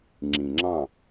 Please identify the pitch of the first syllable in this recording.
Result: low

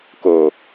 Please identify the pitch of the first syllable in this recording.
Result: low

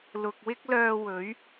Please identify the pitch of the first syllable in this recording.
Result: low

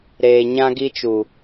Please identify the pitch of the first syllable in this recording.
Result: low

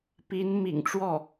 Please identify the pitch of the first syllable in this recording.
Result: rising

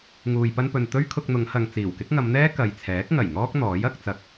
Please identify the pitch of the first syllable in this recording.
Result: low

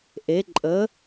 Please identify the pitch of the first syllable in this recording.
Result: rising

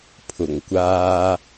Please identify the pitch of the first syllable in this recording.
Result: low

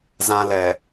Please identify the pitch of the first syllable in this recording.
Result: high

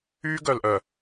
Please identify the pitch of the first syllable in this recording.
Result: high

